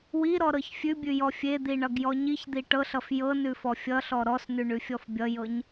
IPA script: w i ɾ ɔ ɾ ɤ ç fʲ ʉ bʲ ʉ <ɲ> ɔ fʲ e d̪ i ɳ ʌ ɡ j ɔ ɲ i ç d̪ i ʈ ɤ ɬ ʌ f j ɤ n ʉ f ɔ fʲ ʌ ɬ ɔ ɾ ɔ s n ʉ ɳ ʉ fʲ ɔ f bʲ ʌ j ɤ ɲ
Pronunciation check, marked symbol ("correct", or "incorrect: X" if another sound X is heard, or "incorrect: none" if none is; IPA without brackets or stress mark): incorrect: j